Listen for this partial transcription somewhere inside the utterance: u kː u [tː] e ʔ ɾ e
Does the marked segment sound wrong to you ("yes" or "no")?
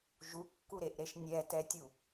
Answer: yes